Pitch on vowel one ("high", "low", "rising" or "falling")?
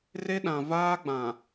high